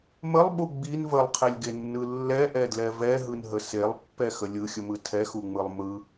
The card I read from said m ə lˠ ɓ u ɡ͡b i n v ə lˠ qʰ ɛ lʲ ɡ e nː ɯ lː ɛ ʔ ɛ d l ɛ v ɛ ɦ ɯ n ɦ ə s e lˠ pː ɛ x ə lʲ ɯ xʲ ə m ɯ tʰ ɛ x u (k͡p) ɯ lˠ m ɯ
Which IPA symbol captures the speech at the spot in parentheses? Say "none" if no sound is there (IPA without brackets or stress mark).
ŋ͡m